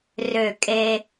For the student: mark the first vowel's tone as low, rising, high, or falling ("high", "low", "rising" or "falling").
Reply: falling